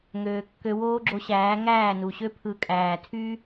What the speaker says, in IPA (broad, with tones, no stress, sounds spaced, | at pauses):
ŋ øː˨ kː ø˧ w oː˦ ɡ͡ǁ o˧ ɕ æː˨˦ ŋ æː˦˨ n u˨ ɕ ø˦ pʰ ɯ˧ kʼ æː˨ tʰ y˦